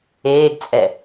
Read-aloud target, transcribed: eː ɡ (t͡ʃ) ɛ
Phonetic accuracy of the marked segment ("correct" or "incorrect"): incorrect